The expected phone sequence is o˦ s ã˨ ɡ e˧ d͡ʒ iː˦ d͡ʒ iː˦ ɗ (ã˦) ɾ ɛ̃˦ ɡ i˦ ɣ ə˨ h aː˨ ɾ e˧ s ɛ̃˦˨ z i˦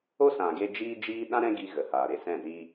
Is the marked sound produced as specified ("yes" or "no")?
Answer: yes